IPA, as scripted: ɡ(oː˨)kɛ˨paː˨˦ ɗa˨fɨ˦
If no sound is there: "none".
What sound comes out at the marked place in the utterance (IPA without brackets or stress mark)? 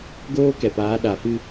oː˦